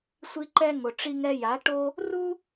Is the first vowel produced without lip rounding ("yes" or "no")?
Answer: yes